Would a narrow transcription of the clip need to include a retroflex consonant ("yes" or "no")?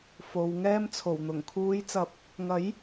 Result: no